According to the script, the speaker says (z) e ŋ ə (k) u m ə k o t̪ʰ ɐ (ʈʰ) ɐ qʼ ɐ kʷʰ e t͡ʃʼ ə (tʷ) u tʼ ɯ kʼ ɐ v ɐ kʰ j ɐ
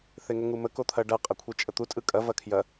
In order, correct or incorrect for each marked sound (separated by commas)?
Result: incorrect, incorrect, incorrect, incorrect